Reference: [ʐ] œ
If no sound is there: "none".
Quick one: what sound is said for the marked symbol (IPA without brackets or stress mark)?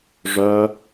ʐ